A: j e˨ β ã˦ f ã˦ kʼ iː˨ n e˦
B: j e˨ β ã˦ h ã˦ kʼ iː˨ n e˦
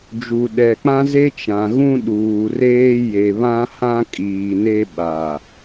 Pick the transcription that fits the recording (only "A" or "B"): B